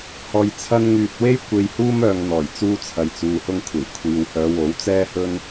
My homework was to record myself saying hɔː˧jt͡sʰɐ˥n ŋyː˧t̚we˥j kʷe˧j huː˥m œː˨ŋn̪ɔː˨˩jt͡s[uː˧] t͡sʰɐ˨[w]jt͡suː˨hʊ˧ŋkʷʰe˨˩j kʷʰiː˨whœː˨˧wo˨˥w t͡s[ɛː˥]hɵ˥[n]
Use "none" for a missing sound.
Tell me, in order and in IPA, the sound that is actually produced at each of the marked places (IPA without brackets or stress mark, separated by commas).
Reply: uː˧, none, ɛː˥, n